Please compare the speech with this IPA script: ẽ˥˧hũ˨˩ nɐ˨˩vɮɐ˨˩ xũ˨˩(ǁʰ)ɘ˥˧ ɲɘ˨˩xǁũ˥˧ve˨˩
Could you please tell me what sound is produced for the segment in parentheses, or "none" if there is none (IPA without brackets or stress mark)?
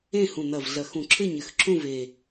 ǁʰ